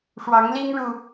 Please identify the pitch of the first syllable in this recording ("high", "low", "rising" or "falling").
rising